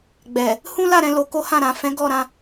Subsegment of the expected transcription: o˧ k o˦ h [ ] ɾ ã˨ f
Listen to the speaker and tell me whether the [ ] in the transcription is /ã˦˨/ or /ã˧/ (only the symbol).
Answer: ã˦˨